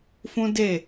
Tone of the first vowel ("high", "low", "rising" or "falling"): high